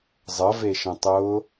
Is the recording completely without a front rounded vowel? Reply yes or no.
yes